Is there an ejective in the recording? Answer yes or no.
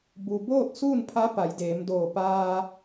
no